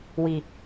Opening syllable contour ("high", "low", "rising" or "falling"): low